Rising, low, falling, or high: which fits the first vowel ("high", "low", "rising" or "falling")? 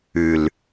low